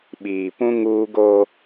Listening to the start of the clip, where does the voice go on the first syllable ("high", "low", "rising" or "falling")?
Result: low